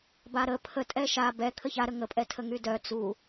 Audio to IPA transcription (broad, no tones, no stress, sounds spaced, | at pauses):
b a ɾ ə pʰ ə tʼ ɛ ʃ a b ɛ kʰ ə ç a ɾ ə ŋ ə pʼ ɛ tʰ ə ŋ y d œ t͡s u